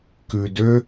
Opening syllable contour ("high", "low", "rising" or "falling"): low